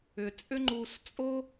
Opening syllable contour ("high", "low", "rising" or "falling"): low